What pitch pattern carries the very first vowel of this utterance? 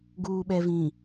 low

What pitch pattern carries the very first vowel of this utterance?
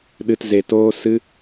low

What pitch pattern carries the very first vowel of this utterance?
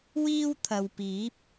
high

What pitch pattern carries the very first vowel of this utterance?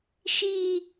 high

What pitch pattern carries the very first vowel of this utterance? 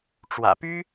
low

